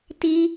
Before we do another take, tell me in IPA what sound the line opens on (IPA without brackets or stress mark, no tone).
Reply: t